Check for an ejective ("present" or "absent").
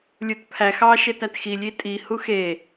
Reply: present